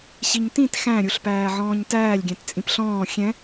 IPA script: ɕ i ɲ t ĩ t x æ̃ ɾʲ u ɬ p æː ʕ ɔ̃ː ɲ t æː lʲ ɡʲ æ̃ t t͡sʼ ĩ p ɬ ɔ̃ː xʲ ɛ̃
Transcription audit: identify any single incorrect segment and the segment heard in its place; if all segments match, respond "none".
none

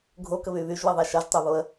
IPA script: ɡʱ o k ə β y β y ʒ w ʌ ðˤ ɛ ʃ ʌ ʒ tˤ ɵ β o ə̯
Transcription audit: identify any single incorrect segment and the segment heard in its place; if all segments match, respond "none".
ɵ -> ø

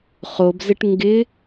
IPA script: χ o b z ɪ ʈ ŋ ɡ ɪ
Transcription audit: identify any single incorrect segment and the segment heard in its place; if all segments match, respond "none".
none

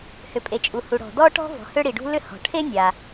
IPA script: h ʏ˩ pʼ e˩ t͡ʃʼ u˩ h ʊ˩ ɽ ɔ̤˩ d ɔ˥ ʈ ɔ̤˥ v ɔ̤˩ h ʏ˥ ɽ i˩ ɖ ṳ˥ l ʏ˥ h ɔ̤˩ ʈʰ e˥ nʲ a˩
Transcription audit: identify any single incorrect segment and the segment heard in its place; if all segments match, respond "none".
ʊ˩ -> u˩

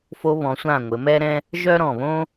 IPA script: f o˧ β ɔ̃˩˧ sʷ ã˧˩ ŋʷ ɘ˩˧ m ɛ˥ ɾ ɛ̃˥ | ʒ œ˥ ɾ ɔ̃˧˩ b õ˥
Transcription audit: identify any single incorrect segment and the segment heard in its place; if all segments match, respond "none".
b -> β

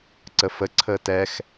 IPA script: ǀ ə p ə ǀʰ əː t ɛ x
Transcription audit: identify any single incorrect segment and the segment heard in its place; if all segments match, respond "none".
p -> f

